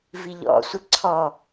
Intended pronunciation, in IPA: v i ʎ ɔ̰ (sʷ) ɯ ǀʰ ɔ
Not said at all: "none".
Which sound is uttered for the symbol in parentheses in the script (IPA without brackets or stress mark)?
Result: sʷ